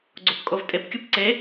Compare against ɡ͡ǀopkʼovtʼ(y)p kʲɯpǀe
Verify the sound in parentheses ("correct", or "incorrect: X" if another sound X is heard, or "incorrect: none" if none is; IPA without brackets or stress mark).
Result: incorrect: e